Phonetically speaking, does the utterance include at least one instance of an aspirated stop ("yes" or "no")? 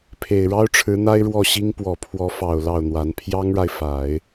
yes